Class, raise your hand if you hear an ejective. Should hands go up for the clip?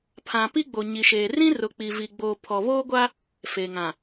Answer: no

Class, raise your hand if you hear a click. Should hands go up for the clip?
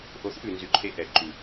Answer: yes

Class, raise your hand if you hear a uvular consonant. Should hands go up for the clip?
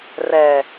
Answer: no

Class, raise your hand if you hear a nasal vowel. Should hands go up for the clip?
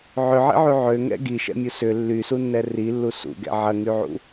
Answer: no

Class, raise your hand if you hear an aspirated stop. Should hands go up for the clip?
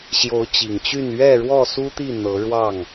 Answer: no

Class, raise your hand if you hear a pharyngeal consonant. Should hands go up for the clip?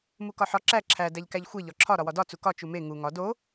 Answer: yes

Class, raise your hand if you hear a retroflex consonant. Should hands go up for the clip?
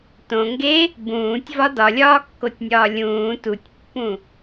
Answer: no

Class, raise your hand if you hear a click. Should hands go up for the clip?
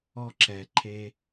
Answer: yes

